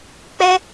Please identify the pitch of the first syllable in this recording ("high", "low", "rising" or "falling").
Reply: high